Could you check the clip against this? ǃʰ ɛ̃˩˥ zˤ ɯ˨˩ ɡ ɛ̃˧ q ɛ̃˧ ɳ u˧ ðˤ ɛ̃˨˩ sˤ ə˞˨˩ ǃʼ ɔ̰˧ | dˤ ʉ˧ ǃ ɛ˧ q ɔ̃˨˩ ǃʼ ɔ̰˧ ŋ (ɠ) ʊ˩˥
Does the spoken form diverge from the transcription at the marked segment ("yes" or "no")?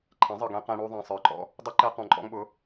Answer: yes